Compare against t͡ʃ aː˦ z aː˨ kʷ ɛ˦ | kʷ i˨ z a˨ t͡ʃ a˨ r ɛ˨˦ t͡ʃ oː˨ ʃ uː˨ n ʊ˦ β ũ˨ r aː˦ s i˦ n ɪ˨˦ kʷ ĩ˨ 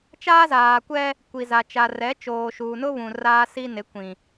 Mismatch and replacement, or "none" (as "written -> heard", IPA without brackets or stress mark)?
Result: none